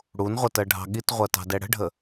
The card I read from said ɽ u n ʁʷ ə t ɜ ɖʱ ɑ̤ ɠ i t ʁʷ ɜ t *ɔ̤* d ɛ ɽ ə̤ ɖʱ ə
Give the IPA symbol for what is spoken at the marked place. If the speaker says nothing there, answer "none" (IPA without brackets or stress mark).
ɑ̤